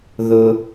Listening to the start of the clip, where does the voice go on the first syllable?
high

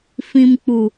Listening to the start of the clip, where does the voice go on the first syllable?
low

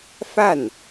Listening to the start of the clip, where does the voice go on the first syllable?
falling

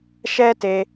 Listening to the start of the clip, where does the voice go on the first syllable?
high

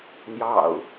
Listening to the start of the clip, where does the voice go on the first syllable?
low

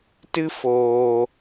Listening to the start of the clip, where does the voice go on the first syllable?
high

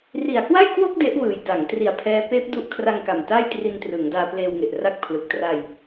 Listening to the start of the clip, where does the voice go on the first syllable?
low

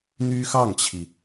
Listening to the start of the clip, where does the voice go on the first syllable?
high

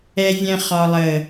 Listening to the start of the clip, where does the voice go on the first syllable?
low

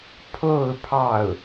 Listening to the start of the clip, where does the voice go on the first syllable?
falling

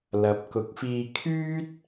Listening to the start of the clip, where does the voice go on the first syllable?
rising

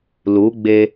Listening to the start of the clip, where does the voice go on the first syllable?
rising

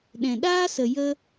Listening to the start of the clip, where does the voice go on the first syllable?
low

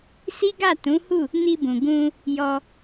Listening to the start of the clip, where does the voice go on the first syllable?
high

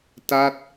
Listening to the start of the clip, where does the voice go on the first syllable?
falling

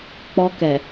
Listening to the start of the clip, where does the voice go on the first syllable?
high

